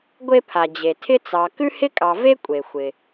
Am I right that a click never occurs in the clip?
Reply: yes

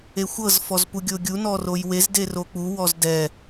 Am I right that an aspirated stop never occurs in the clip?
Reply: yes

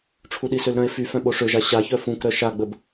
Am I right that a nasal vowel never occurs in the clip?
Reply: no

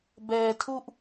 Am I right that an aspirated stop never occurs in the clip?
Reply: no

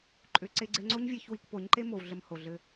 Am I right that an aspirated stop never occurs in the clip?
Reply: yes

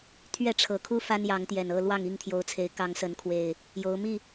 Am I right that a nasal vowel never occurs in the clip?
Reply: yes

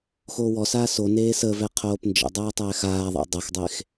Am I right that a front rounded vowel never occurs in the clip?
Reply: yes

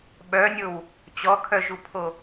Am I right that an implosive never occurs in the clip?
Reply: no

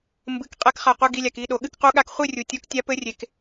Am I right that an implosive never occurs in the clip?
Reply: no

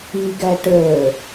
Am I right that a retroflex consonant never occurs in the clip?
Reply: no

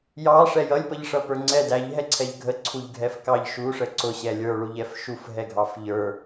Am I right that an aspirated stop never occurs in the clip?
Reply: no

